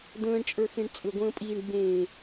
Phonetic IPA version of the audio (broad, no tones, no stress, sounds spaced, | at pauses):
d̪ ə̃ː ɳ t͡ʃʼ ə˞ x ẽ ɳ t͡sʼ ʏ ɡʷ ə̃ː pʼ iː ɳ ɡ͡b ẽː